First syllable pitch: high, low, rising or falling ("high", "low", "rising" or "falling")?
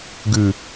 low